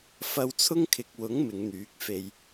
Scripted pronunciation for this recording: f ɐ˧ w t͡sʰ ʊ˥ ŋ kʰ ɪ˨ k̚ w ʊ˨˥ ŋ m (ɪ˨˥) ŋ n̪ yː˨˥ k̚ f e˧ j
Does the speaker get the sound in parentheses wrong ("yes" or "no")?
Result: yes